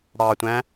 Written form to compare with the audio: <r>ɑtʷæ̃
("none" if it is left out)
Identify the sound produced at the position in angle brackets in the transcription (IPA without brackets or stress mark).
ɽ